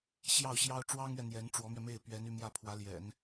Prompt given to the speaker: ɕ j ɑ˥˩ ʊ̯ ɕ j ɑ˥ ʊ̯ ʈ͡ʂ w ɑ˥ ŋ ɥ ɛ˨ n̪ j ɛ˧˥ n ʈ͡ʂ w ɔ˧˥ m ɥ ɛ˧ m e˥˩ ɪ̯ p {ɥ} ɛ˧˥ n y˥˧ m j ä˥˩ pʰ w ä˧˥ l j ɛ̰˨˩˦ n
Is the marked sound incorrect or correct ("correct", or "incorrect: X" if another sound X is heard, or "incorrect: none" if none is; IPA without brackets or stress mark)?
correct